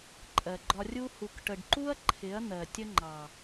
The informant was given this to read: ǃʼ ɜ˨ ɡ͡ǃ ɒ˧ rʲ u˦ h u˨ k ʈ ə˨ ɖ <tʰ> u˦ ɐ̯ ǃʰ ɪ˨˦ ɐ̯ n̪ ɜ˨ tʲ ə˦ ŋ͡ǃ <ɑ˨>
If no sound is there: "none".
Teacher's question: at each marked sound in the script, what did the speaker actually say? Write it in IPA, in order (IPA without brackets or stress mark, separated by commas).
ǃ, ɑ˨